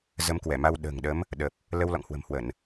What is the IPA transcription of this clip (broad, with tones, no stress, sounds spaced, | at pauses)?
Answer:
z ə˨˦ m k w ɛ˧˩ m a˧ w ɗ ə̤ː˨˩ ŋ ɗ ə˨˦ m | ɗ ə˨˩ p̚ | l ə˧ w l ɔ̰˧˨ ŋ h w ə̤˨˩ m h w ə˧˩˨ n